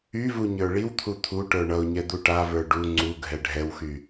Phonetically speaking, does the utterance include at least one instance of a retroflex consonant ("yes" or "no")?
yes